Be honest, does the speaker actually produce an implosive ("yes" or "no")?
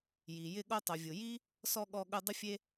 yes